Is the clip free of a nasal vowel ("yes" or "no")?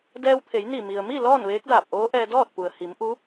yes